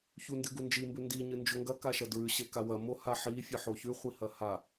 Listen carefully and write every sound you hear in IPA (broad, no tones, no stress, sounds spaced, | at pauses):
ç u n d ɨ ɡ u n d͡ʒ i m b ʉ n d i ɲ ɨ n d͡ʒ o ŋ ɡ ɐ k a ʃ ɐ d ɹ ʉ ɕ e k a w ɐ m o h a ħ i fʲ ɨ ħ o ç ʉ χʷ i h ɐ h a